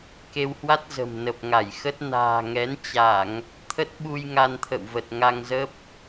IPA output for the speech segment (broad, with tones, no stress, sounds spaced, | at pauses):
k e˧ w h w a˦˥ t̚ z ə̤˨˩ m n ə˨˩ p̚ ŋ a˧˩ j x ə˦˥ t̚ n a̤ː˨˩ ŋ ɛ˨˦ n t͡ɕ a˧˩˨ ŋ | t̪ʰ ə˦˥ t̚ ɓ u˧ j ŋ a˧ n t̪ʰ ə̰˧˨ w v ə˨˩ t̚ ŋ a˧ ŋ z ə˦˥ p̚